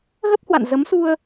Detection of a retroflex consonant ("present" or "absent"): absent